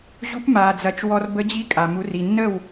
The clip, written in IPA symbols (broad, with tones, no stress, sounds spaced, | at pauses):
ʑ u˧˥ p m aː˩ d͡z ɐ˩˧ t͡ʃ w ɔ˧ r b ə˧˥ d͡ʑ i˧˥ kʼ a˩ m u˩˧ r i˩ nː ə˥˩ w